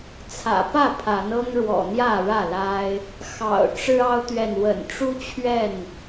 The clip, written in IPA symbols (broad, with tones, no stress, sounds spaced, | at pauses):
t͡sʰ ä̰˨˩ p ä˥˨ pʰ a˨˦ n ɤ˦ ŋ ɻ w ɔ̰˨˩ n̪ j ä˥˨ ɻ ä˥˨ l a˦ ɪ̯ | x ɑ̰˨˩ ʊ̯ ʈ͡ʂ ɻ̩˦ ɑ˦ ʊ̯ t̪ ɥ ɛ˨ n w ə̰˨˩ n ʈ͡ʂ u˦ t͡ɕʰ ɥ ɛ˥˨ n